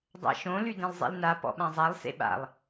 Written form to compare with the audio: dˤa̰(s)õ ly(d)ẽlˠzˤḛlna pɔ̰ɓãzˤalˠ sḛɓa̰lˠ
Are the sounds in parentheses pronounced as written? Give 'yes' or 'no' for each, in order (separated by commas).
no, yes